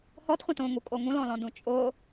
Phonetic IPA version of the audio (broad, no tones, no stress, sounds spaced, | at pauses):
h ɔ t χʷ ã t õ ŋ u kʼ o ŋ ũ l ɔ̃ l ɔ̃ d ũ t͡ʃʼ ʊ